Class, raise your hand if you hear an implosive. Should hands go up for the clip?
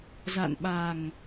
yes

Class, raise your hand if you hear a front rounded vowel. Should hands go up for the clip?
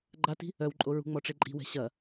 yes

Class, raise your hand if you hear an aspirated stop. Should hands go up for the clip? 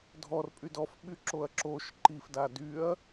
no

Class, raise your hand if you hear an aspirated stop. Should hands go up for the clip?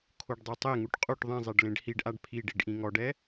yes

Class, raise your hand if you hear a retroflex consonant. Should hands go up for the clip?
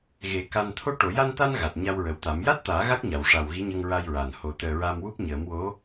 yes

